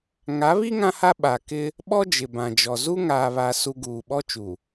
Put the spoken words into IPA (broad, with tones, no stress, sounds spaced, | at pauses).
ŋ a˨˦ β i˦ ŋ ã˦ h a˦ ɓ a˨ k ɪ˦ | ɓ ɔ˦ d͡ʒ ɪ˨ b ã˨ d͡ʒ ɔ˨ z u˦ ŋ aː˨ β a˨ s u˨ ɡ uː˨ ɓ ɔ˦ t͡ʃ u˨